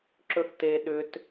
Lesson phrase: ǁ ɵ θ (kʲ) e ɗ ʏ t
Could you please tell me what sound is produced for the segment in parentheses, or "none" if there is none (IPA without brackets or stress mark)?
t